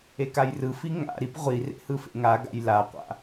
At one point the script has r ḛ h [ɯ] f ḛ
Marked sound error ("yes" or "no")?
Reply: no